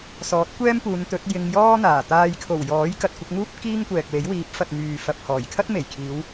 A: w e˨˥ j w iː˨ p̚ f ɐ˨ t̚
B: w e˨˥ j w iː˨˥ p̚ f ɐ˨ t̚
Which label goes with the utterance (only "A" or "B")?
B